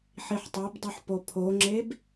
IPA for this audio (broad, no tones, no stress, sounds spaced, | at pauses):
ħ i ħ tˤ o b dˤ u ħ p o pʰ o ŋ͡ǁ e b